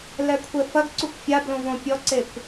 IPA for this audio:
l ɛ kʷʰ ɛ f ɐ ɡ ǀ u kʷ fʲ a b l õ v õ pʲ ɔ ǀ e kʷ

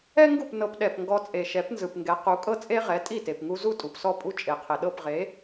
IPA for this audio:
ɛ˥ ŋ ɡ u˥˩ p n ɤ˧ p ɗ ɛ˩ p ŋ ɡ ɔ˧ t͡sʼ e˩ ʃ ɛ˩˥ p n z ɯ˩ p ŋ ɡ ɛ˩˥ q u˩˥ kʼ ɤ˥ t͡sʼ e˥ ʁ ɛ˩˥ tʼ i˥˩ t e˩ p ŋ u˧ z u˥˩ tʼ u˩ p s ɔ˥˩ pʼ u˥˩ t͡ʃʼ e˩ qʰ e˩ ɗ ɤ˥˩ p ʁ e˩˥

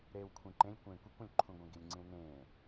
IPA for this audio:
ɾ eː w kʷʰ ĩ ǃ ẽ lʲ kʷ ẽː kʷ e kʷ ũ lʲ ǃʰ ũ ɡʷ ẽ ɡ i lʲ ŋ͡ǀ ĩ w n ẽː

